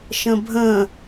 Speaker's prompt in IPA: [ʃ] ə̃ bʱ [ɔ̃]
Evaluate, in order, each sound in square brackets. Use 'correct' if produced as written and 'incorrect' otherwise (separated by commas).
correct, incorrect